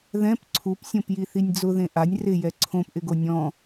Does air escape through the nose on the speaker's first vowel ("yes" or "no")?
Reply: yes